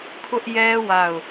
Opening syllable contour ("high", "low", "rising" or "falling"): high